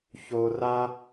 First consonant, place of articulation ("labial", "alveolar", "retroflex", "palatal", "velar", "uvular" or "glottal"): palatal